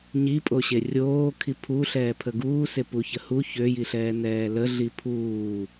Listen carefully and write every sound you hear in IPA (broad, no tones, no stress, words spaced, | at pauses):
ɲipʼoɕe rʲoː kʰipʰu ɬɛːpʰəɡuːse puçəhu çøjiɬɛː nɛːləɮi pʰuː